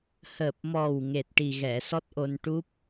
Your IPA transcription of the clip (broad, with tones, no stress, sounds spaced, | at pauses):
h əː˨˩ p̚ m ɔ˨˩ w ŋ e˨˩ t̚ ʈ i˨˩ ɣ ɛ˨˩˨ s ɔ˦˥ t̚ ʔ o˧ n ʈ u˦˥ p̚